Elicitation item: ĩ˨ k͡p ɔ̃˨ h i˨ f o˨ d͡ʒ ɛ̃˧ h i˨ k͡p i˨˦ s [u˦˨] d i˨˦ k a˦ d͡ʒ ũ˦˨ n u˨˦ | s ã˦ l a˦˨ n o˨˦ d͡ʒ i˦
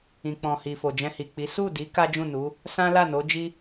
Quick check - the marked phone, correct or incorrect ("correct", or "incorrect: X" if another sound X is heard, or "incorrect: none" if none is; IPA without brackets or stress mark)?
correct